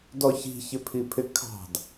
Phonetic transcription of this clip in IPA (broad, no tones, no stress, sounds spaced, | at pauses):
d ɔ ç i̤ ç ɪ pʰ i pʰ ɪ kʰ ɑ̤ d